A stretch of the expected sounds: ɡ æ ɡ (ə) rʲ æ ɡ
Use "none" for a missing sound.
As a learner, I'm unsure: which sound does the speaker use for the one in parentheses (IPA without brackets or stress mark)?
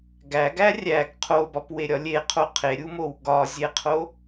æ